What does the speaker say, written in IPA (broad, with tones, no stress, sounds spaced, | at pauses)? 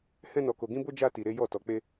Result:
h ɛ̃˦ n ɔ˧ k o˧ ɡ ĩ˦ b o˦ d͡ʒ a˦ t i˧ ɾ e˦ j ɔ˦˨ t ɔ˧ k͡p e˦